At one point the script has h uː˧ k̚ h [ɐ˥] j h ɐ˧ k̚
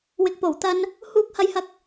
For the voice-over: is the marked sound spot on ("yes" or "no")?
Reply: no